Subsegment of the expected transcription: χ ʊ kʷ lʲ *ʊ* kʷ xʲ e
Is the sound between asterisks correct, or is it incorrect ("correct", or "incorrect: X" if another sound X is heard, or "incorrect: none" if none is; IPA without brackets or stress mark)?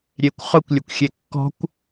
correct